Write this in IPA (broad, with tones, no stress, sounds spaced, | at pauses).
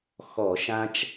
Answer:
x ɔ˧˩˧ ʃ ã˦ t͡ʃ